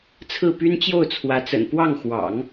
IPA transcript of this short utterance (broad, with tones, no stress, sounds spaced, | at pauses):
t͡sʰ ɹ̩˥˩ p y˥ n t͡ɕ j o˥˩ ʊ̯ t͡sʰ w ä˧˥ t͡s ə̰˨˩ n p w ɑ˥˩ ŋ x w ɑ̰˨˩˦ ŋ